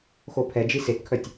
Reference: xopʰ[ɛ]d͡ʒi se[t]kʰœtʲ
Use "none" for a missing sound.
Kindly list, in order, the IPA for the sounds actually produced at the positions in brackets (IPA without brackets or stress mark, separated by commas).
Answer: ɛ, t